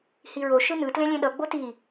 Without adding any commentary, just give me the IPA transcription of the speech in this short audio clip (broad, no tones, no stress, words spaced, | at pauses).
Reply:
hiɹo ʃɯnɯ tlẽlʲẽɗʌ ɡ͡boti